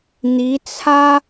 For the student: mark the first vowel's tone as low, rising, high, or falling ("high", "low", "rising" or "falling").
rising